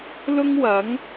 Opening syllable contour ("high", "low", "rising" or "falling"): high